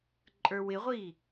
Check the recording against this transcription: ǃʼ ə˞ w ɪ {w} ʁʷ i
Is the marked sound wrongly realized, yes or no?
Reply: yes